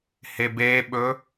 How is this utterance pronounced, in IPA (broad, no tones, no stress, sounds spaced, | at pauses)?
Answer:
h e b e ɓ ɵ